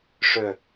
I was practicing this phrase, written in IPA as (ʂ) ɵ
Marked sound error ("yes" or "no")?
no